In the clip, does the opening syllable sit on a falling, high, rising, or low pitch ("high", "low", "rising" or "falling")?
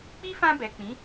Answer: high